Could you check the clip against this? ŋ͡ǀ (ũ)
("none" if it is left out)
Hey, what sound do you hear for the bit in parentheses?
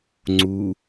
u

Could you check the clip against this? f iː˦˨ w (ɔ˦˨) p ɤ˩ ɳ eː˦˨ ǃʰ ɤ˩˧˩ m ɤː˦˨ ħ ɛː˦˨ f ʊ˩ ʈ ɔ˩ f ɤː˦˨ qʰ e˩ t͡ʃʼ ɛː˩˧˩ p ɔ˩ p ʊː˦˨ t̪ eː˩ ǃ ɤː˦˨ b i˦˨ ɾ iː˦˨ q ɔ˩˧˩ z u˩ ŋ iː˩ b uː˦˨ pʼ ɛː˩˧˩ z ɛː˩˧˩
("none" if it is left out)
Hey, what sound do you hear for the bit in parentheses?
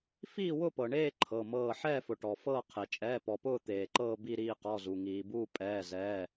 ʊ˦˨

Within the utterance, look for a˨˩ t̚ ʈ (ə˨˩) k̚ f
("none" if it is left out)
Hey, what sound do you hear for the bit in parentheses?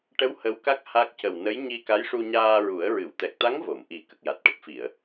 ə˦˥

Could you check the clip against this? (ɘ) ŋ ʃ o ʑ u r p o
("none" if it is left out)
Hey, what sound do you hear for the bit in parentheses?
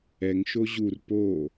ɛ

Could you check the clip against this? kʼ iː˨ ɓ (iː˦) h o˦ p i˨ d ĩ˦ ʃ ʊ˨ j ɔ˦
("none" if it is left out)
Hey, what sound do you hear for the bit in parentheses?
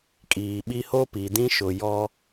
i˦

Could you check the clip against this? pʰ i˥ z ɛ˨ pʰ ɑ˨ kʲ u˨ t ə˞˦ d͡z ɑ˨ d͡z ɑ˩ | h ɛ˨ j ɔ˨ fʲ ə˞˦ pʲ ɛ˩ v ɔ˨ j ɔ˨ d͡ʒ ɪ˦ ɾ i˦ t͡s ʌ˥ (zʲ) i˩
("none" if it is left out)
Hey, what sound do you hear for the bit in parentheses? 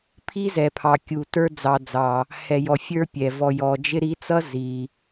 z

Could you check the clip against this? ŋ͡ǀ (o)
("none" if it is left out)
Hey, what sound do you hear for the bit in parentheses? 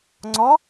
ɔ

